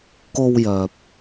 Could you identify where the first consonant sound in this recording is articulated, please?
velar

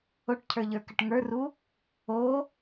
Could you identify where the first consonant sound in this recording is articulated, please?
retroflex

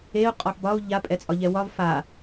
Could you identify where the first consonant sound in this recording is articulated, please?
uvular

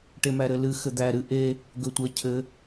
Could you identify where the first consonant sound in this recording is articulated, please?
retroflex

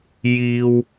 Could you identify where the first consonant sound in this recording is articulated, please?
palatal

